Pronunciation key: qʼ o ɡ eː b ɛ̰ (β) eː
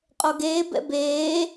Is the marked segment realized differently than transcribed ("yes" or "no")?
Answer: yes